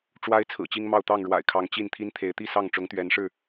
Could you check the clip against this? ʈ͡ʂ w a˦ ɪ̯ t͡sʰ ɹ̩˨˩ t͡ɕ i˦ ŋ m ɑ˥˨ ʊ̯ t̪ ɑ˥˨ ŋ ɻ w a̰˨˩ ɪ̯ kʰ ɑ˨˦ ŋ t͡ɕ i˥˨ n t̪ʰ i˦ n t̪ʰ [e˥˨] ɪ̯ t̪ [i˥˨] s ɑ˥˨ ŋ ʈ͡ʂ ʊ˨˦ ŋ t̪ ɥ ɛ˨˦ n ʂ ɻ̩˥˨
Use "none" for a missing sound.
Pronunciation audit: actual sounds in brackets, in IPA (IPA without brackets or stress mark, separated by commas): e˨˦, i˥˨